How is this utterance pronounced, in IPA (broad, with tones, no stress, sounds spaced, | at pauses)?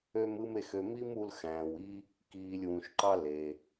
ø˦ m ɯ˦ m e˨ x ø˨ m i˥ m u˥ l x æ̃ː˩ w i˥ | k iː˨ lʲ w ũ˩ ʃ ǃ ɑ˥ l e˩